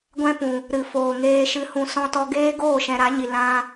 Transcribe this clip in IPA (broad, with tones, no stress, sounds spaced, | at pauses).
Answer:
ɡʷ ɛ̃˦ p ũ˨ | ɾ ɨ˨ f oː˨ ŋ eː˧ ʃ ɨ˧ h ũ˧ s ɔ̃˦ t ɔ˧ ɡ eː˦ ɡ oː˦˨ ʃ ɛ̃˨ ɾ a˨˦ ɲ i˨ l ã˧